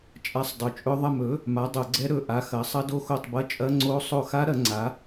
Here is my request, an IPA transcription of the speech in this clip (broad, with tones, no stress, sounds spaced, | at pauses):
t͡ʃʼ a˦˥ sˤ dˤ ɵ˨˥ t͡ʃʼ ɵ˦˥ ðˤ ɐ˦˨ m ɵ˨˥ | m a˨˥ dˤ o˧˩˧ ɡ͡ǀ ɛ˦˥ ɾ ɵ˦˨ ʔ a˨˥ x ɐ˨˥ sˤ ɐ˦˥ d o˦˥ x o˦˨ tˤ b ɐ˦˥ t͡ʃʼ ɐ˦˥ ŋ͡ǀ o˦˥ sˤ o˦˨ x a˦˥ ɾ ɐ˨˥ ŋ͡ǀ a˨˥